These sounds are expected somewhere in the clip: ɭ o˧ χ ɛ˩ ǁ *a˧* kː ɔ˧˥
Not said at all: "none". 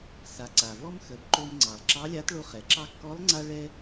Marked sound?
ɑ˧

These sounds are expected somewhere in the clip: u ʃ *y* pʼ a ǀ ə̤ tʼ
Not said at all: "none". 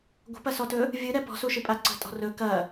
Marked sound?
ɨ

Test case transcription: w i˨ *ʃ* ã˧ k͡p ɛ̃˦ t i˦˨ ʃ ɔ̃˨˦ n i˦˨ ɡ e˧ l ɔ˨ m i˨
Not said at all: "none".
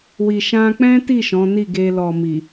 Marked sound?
ʃ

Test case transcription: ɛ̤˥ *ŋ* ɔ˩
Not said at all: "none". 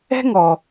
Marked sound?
ŋ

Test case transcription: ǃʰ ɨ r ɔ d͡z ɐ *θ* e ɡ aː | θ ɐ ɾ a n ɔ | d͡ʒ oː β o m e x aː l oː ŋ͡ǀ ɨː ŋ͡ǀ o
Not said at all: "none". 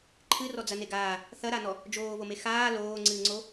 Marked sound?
n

